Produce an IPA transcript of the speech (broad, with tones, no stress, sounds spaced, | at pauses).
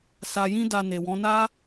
s a˧ j ĩ˦ d a˧ n e˨ w ɔ̃˨˦ n a˦